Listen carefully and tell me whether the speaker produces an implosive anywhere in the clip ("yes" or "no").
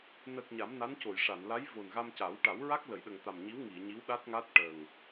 yes